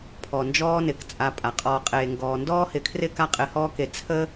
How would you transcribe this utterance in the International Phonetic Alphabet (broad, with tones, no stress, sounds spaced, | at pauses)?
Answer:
pʰ ɔ˨ n d͡ʒ ɔː˦ n ɪ˨ k t͡sʼ a˧ pʼ a˨ qʼ ɔː˧ qʼ eː˨ ŋ ɡ ɔː˨ n d ɔː˦ h ɪ˧ kʰ r ɪː˦ k a˦ qʼ ɪ˧ h ɔː˦ k e˧ t͡sʰ ə˦